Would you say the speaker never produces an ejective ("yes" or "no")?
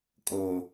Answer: no